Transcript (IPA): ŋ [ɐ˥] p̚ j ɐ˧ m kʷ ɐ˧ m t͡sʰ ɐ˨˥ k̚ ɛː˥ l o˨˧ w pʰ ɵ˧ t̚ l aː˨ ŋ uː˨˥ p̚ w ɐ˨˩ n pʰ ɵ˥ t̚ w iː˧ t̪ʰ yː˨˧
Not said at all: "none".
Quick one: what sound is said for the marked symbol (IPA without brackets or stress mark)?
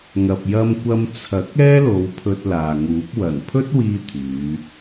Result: ɐ˨